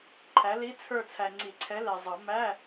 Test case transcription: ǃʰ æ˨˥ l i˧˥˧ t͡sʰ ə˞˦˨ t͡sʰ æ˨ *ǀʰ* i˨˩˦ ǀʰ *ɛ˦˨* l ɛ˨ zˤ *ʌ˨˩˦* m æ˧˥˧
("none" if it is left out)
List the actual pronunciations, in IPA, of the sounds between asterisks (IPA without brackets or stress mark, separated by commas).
ŋ͡ǀ, ɛ˨˥, ʌ˨˩˦